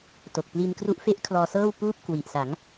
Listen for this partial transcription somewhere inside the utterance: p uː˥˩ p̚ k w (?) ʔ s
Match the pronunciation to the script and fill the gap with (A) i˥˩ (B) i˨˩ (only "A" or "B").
B